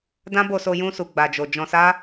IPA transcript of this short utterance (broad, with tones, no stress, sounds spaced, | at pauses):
d ã˦ b o˧ s o˧ j ũ˧ s u˨ ɡ͡b a˨ d͡ʒ o˨ d͡ʒ ɔ̃˧ s a˦